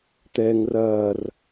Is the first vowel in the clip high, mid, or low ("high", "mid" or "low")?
mid